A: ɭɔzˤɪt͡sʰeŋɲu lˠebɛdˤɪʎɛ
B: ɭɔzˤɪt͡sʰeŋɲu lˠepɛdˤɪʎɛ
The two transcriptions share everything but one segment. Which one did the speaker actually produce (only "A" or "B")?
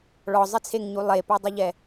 B